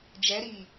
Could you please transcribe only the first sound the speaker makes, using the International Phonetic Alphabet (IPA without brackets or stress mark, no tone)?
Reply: d͡ʒ